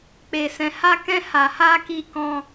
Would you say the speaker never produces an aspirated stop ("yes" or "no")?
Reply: yes